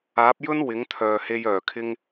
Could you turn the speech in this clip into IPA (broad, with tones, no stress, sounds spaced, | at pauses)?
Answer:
aː˨˥ p̚ j ɵ˥ n w ɪ˨˥ ŋ t̪ʰ œː˨ h e˧ j œː˨˩ kʰ ɪ˥ ŋ